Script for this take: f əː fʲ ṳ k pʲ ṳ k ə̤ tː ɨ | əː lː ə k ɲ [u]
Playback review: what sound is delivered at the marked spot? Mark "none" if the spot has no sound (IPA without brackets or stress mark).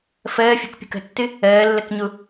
u